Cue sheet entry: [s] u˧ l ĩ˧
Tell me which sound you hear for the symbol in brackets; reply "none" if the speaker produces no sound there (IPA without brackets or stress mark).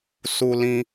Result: s